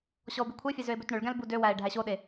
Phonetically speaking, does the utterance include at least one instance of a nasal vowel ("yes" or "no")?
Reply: yes